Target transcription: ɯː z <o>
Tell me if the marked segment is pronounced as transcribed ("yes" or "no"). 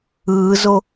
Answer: yes